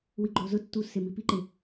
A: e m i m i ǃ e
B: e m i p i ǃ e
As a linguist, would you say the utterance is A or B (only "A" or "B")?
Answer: B